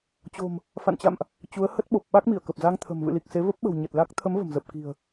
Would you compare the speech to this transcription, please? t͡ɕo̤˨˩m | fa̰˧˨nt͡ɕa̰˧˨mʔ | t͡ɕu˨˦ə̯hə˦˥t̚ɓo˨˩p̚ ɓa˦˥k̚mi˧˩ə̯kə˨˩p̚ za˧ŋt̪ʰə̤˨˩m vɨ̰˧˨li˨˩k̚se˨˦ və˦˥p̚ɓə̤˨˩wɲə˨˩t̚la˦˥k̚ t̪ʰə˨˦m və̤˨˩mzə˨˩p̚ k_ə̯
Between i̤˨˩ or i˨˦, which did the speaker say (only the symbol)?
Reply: i̤˨˩